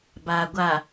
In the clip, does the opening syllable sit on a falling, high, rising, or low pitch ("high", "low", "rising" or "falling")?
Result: low